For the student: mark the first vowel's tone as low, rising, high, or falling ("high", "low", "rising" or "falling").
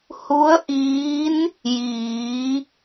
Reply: rising